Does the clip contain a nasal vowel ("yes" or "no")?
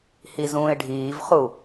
yes